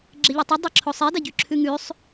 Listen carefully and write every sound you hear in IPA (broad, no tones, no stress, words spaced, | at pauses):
ɡ͡ǁeʎitˤi dˤiǁʰosˤi daɟʉǁʰʉŋʉsˤ